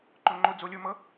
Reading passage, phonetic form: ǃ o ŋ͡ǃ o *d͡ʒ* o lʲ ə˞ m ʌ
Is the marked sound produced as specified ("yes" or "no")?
no